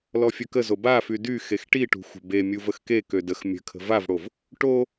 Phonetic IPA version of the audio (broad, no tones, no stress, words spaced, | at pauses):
lɔfʲœkəzo bafy dy xexʈiʈṳ xʷə̤be mʲuvəxke kødəx mʲə̤kʰə̤ vavɽov | ʈo